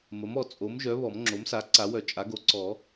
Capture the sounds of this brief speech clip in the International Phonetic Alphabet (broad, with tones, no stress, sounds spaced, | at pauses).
m ə˩˥ m ɔ˨˩˦ t͡sʼ o˩˥ m ʒ œ˩˥ β ɔ˨˩˦ m ŋ͡ǁ o˩˥ m s a˩˥ ǀ a˨˩˦ w œ˨˩˦ t͡ʃʼ a˩˥ ɡ o˩˥ ǀ ɔ˨˩˦